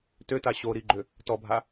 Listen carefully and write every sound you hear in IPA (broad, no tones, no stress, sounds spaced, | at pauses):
t ø t a ɕ o ɾ i ɡ͡ǃ ø | t ɔ bʱ a